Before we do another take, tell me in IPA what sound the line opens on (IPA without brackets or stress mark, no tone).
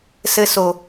s